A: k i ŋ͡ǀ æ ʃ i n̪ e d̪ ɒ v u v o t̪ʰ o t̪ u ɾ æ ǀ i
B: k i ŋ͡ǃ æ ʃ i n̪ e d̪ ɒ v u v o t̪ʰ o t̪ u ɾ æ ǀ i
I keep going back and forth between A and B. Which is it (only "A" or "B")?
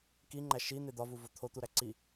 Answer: B